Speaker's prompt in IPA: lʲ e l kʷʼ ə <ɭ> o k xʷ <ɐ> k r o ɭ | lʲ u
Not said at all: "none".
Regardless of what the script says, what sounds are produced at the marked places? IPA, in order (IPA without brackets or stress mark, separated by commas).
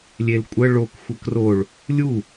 ɭ, ə